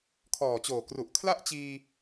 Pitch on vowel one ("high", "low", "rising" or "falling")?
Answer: low